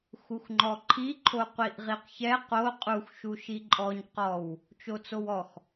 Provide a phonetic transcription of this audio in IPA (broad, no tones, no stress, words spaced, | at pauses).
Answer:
xuxŋ͡ǃɔǃʰiǃʰo qʷiʔʁiqçɛ qo qʼuxʃuʃi ǃʼɔɲ qɔw | t͡ʃot͡sowɔx